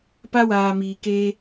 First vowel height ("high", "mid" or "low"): low